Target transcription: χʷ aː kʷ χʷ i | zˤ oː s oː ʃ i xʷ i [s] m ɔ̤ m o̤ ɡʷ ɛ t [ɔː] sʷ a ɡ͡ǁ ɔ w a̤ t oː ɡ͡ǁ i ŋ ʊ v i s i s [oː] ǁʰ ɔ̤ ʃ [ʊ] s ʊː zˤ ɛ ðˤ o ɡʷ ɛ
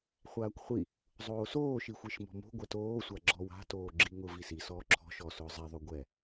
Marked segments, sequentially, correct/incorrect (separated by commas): incorrect, incorrect, incorrect, incorrect